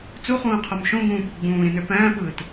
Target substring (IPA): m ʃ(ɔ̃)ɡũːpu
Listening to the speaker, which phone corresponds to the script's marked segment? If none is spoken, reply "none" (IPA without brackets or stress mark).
õ